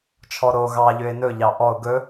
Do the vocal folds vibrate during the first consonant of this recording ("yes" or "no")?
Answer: no